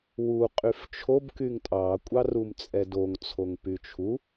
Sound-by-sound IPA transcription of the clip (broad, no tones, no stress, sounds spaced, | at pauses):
w u qʼ y f t͡ʃʰ o b k y ŋ tʼ ɑ kʷʼ ɑ r u m t͡sʼ ɛ d o ŋ t͡sʰ o ŋ p y t͡ʃʰ u